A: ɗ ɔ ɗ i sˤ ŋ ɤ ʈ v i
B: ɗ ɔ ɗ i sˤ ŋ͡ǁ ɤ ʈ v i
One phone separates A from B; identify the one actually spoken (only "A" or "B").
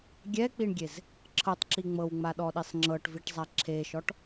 B